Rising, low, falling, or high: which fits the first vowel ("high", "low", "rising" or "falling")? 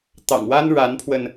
low